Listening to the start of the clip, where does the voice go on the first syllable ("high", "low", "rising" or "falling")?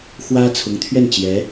high